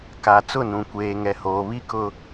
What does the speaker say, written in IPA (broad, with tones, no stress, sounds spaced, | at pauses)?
k a˨ t͡s ʊ˦˨ n ũ˨ kʷ eː˨ ŋ ɛ˨ h oː˨ β i˦ k ʊ˦